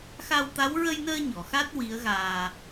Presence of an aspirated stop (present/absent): absent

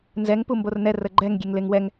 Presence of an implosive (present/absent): absent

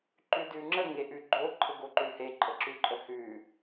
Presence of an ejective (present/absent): present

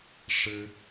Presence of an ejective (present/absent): absent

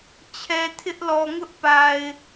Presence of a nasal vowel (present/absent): absent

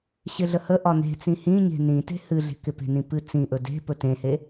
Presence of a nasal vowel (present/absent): present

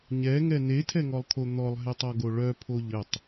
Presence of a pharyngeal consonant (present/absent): absent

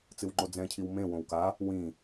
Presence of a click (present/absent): present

